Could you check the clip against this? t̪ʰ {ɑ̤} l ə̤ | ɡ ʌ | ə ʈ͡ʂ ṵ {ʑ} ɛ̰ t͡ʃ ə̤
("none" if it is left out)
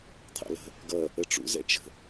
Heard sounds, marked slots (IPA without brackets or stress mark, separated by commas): ɑ̰, z